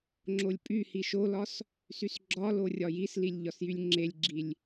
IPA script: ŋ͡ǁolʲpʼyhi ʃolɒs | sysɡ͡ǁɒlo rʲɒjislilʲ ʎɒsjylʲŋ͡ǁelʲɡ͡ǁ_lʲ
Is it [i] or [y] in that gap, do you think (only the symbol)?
i